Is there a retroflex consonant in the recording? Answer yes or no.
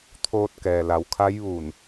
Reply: no